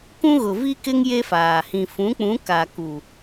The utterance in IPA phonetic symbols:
kũ˦ɣʊ˨vi˦kɪ˦ŋ je˦faː˨ hĩ˨fũ˨˦k͡pũ˨˦ ka˨ku˨

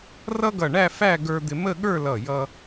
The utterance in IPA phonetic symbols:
rʌ˥ɡʌ˧˩ɳæ˥˧ fæ˥˧ɡə˞˧d̪ɪ˧ mə˥˧ɠə˞˥˧lʌ˧˩jʌ˧

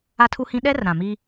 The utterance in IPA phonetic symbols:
a˦tʰu˦hĩ˦ ɗɛ˦r ɾã˨mi˦

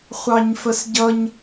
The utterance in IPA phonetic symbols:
χʷɑɲfəsɟʌɲ

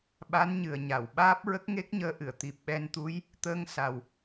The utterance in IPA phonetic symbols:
ɓa˧˥nɲɨ˨˩ə̯ɲa˨˩˨w ɓaː˦˥p̚ ɹə˦˥k̚ŋe˦˥k̚ɲəː˧˥ʔɨ˨˩˨ə̯ t̪i˨˩p̚ɓɛ˧nt̪u˧˥j | t̪əː˧ŋsa˨˩w

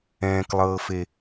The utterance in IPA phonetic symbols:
ɛ̃ːklˠɤːfe

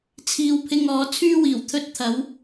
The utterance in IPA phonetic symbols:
t͡sʰiː˧wpʰɪ˧ŋɔː˨˧ t͡sʰyː˧wiː˨˩w t̪ʰɵ˧t̚t̪ʰɐ˨˧w

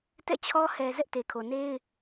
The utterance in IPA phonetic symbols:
tɛ̰˦˨t͡ɕʰɔ˦ hɛ˨ zɛ˦ʔte˨kʰo˨ ne˦ɪ̯

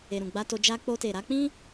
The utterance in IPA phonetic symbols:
e˨ɾũ˨ɡ͡ba˧ to˧ d͡ʒa˧k͡po˧te˨ ɾa˨˦k͡pĩ˦

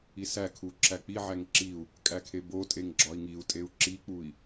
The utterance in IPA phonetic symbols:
isækʰu ǁæk͡piʕæŋ ǁiu̯ | kʼækʰebotʼeŋ ɡ͡ǁɒi̯ŋiu̯tʼeu̯ ǁik͡pui̯

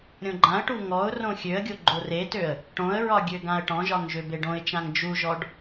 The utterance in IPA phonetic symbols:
ɾʲõɡ͡ǃãə̯ʈu ŋɔʊ̯ rõxʲøə̯ɡʲo ɡ͡ǃoretøə̯ | ʈõə̯ɹɒ ɡʲøɡãə̯ʈɔ̃ʒɒŋ ʒøbeɖõɪ̯t͡ʃãŋ d͡ʒuʒɔɖ

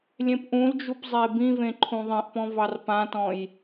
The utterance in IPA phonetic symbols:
lʲẽpʔũld͡ʒup zˤebĩvẽ ǃʰũðˤĩʔpɔ̃ vɑrpãtɔ̃j

